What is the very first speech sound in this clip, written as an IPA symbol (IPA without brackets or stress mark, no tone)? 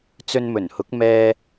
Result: t͡s